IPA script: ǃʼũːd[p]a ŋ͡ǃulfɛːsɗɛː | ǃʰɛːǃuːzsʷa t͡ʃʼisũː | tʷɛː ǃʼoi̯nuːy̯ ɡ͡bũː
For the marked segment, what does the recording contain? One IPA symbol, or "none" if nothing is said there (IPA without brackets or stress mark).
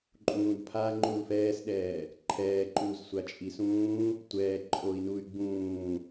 pʰ